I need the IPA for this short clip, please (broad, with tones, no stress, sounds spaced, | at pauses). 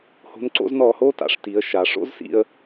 h o̤˧˥ n ǀ o̰˧˥ z n ɔː˧ h oː˥ t a̰˩˧ ʂ t i˩˧ ə̯ ʃ a˩˧ ʂ o̰˥ z s ḭ˧ ə̯